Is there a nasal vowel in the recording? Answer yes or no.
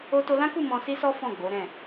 yes